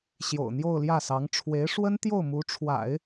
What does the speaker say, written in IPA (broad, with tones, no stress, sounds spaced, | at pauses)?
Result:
ɕ j o̰˨˩ ʊ̯ n̪ j o˥˧ ʊ̯ l j ä˥˩ s ɑ˧˥ ŋ ʈ͡ʂʰ w e˧˥ ɪ̯ ʂ w ə˥ n t̪ j o˥˩ ʊ̯ m u˧˥ ʈ͡ʂʰ w a̰˨˩˦ ɪ̯